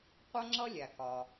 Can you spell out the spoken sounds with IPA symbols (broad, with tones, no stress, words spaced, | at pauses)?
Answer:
qʷʌ˥ŋ͡ǁʌ˥ lʲæ˩kɒ˩